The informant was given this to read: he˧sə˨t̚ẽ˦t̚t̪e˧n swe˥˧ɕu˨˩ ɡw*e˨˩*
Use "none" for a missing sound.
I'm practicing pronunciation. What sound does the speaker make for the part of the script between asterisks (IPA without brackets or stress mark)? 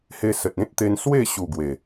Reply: e˨˩